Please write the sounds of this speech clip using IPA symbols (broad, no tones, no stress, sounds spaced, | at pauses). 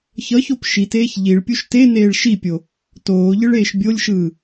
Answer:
ç ʌ ç o p ʃ i t eː ç ʎ i ɭ pʲ u ʃ t e n eː ɭ ʃ i pʲ o | t oː ʎ ɯ ɭ eː ʃ bʲ o lʲ ʃ ɯː